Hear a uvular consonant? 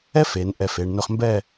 yes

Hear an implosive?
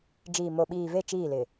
yes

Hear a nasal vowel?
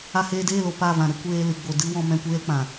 yes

